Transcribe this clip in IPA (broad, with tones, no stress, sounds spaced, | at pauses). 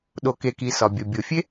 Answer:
ɗ o˩ k e˩ k i˩ s ɒ˩ bʲ ɒ˩ bʲ o˩ fʲ e˥